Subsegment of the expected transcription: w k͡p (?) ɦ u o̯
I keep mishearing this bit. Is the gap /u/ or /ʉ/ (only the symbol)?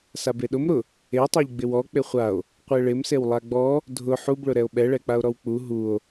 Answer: u